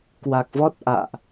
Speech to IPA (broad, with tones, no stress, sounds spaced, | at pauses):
k w a˨˩ k̚ v ɔ˦˥ t̚ ʔ a̰ː˧˨ ʔ